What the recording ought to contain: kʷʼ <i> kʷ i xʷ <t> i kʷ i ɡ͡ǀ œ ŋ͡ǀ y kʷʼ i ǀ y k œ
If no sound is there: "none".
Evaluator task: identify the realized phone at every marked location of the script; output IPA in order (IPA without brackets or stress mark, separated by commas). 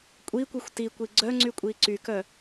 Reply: i, t